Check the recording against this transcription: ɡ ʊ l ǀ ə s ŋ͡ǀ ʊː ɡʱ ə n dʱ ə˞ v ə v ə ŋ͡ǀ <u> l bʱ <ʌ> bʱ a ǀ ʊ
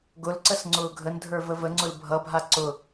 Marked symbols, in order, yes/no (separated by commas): no, yes